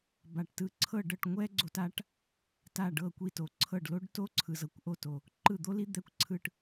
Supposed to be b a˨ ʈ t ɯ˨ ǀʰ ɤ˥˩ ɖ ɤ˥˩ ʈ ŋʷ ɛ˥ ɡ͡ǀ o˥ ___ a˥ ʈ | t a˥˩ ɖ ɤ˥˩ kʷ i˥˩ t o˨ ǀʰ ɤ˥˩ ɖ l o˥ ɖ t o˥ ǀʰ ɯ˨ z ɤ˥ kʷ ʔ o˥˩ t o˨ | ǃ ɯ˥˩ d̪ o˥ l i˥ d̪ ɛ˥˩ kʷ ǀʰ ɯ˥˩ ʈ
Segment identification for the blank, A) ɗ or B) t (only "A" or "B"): B